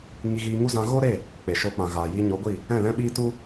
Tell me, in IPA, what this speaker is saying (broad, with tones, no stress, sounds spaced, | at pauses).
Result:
ŋ i˧ ɣ iː˧ ŋ u˦ z ã˧ ɣ o˦ ɾ e˦˨ | k͡p e˨ ʃ oː˧ k͡p ã˨ ɣ aː˨ j iː˧ ɲ o˨˦ ɡʷ i˦˨ | ɛ̃˦˨ l ɛ̃˦ ɓ iː˦ t u˦